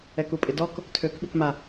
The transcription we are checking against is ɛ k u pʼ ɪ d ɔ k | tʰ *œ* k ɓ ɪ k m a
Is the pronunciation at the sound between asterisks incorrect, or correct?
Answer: incorrect: ø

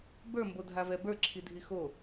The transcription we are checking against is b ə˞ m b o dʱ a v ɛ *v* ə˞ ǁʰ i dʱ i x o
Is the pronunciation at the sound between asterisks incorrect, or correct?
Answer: incorrect: b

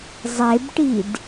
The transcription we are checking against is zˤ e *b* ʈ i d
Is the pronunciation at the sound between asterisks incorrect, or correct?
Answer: correct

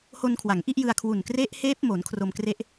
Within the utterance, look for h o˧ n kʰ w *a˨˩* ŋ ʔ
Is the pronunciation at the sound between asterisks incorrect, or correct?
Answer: incorrect: a˩˦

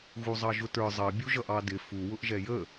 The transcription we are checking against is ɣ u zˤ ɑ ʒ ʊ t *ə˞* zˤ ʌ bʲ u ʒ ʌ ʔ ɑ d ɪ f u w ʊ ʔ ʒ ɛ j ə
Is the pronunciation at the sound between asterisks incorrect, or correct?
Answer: correct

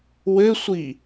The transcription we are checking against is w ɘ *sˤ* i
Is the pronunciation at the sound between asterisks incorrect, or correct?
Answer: incorrect: sʷ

